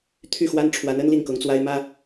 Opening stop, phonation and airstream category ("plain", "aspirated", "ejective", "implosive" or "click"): aspirated